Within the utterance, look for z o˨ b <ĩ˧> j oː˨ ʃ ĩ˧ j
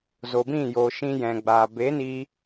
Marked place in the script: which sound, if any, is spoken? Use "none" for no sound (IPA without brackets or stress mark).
ĩ˦˨